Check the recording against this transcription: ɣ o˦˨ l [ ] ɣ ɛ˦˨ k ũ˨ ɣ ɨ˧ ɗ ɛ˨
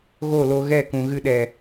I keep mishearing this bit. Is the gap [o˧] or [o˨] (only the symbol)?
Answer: o˧